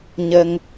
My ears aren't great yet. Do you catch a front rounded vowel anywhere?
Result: no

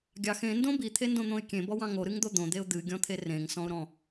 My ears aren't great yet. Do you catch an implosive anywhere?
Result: no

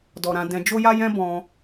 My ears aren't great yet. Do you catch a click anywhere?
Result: no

